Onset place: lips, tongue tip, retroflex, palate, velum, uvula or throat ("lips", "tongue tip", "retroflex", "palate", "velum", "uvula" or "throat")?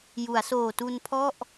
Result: palate